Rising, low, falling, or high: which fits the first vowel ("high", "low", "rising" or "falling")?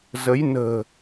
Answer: rising